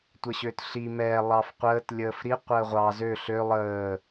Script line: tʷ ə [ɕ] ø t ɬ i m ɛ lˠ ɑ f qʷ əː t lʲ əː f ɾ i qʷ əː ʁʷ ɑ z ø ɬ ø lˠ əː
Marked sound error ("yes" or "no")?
no